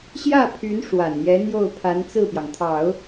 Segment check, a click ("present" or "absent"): absent